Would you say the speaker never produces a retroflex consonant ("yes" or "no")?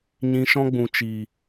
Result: yes